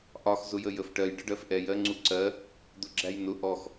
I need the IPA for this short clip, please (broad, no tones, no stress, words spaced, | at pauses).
ʔɒx zʊjəjəfʈɜj ɖəɖɜfʔɛj ɜŋ͡ǀuǀɜ | d̪ʊɡ͡ǁæjnʊ ʔɔx